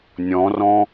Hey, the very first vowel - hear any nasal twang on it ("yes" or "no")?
yes